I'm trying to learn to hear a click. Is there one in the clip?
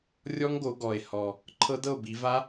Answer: yes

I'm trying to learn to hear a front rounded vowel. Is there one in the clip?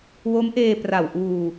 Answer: no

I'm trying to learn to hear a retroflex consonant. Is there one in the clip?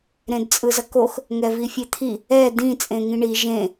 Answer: yes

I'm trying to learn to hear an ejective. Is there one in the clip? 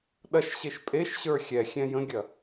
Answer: yes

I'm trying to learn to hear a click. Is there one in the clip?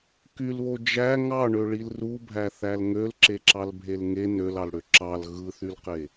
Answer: yes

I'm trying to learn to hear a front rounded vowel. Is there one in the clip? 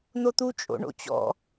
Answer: no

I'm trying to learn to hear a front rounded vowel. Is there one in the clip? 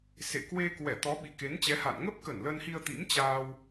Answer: no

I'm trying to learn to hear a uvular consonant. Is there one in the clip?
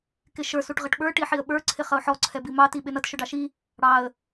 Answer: yes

